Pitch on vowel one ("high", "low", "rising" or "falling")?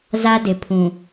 high